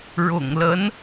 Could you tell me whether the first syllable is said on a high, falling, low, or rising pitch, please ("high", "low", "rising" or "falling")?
low